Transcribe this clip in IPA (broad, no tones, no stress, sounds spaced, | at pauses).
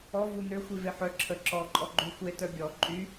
ɔ v u n ø xʷ i v e ħ œ ǁʰ ə ǁ ɔ ǃʼ ɔ ɡ͡ǃ y xʷ e t œ bʲ ɔ ǃʼ y